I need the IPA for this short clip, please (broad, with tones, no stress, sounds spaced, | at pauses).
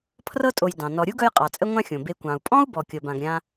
pʰ r ɤ˦ tʼ o˨ j d ɑ̃˩ n ɔ˨ ɾʲ u˥ ɡ œ˦ j qʼ ɑ˩ t͡sʼ ə˦ ŋʷ ã˦ xʲ õ˩ b e˨ kʷ ɑ̃˩ u̯ pʼ ɔ̃˥ u̯ b ɔ˨ kʲ ɤ˨ b ã˨ ɡ ɾʲ ã˦